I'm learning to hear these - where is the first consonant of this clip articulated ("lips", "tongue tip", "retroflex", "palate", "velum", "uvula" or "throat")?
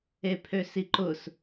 lips